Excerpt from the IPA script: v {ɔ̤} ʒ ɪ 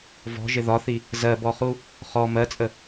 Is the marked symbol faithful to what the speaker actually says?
yes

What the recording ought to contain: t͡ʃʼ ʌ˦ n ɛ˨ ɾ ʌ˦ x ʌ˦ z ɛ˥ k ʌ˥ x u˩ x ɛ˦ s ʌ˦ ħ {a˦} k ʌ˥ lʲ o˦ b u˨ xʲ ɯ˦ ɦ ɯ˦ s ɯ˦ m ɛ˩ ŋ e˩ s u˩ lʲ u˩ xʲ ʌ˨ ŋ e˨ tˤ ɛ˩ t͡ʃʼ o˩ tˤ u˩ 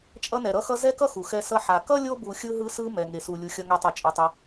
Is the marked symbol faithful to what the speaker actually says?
no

